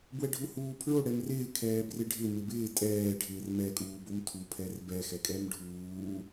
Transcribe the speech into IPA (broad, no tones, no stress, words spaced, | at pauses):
bwɛɖʱuhuːpʰɹo ɽɛmrɪː kʰɛːbrɪɖʱɪ mɪbɪː tʼɛː ɖʱɪːrmɛ kʼuːbomtʰu pʰɛrbɛ xɛkʼɛmɖʱuː